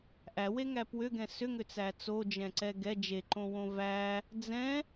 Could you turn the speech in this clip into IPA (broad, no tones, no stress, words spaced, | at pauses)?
ʔæweŋæ pwʏɡɛ̃ sʏŋʏt͡sæ t͡sod͡ʒɛ̃ǀɛ ɡɛ d͡ʒeǃõwõ væ | d͡zɛ̃